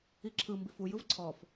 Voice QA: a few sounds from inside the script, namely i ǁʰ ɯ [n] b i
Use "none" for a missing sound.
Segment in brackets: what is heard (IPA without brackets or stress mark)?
m